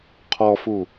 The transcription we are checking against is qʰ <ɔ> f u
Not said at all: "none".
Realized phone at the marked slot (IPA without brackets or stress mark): ɔ